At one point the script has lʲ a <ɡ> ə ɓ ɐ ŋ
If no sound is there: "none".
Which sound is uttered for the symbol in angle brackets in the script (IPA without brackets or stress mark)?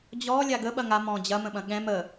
ɡ